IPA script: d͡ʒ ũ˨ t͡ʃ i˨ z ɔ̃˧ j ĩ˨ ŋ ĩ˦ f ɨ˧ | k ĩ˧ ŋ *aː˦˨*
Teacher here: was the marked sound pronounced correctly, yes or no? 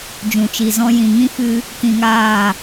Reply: yes